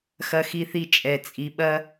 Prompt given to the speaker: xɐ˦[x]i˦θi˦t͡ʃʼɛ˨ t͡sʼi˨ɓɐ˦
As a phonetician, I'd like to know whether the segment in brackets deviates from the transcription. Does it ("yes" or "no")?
no